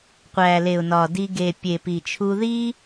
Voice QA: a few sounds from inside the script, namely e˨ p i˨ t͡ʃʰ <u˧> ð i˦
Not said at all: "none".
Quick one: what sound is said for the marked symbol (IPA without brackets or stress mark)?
u˧